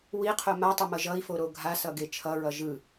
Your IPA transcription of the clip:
w i qʰ o m a tˤ ʌ m ʌ ʒ ʌ i̯ f o ɾ o ɡʱ a s ʌ ɡ e t͡ʃʰ ʌ ɹ ʌ ʒ ɯ

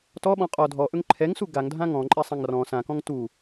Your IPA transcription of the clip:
t ɔ ɓ ɔ̃ qʼ ɔ dʱ ɔ ʔ ɵ ŋ ǃʰ ɛ ŋ s u ɡ a ŋ dʱ ã ŋ ɔ̃ ǃʼ ɛ sˤ ã ŋ r ɔ̃ s ã k ɔ̃ ŋ t u

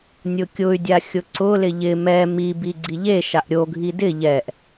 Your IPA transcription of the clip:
nʲ ʊ kʲ ʊ y̯ dʲ a xʲ ʊ ǀ ʊ l ɪ ʎ ɪ m ɛ m i b i ɡ͡ǀ i ʎ e ʃ a ʔ ɾʲ o ɡʱ i d ɪ ʎ ɛ ʔ

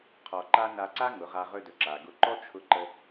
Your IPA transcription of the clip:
qʰ ɔ˧ ǃ a˦ n a˧ ǀ a˦ ŋ ʊ˨˦ ʁ a˧ ʁ ɵ˧ d ɵ˨ ǁ a˨ ɡ ʊ˧ ǃ ɔ˦ t͡ʃʰ ʊ˧ ǃ ə˧

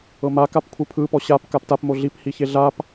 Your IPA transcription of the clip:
ɤ m a k a p kʷʰ ɯ pʰ ɯ p ɔ ɕ a p k a p t a p m o ɮ i p h i ç e ɮ a p

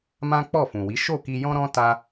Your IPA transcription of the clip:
m ã˦ k͡p ɔ˦˨ f ũ˨ w i˨˦ ʃ o˦˨ k i˧ j ɔ̃˦ ɾ ɔ̃˦ t a˦

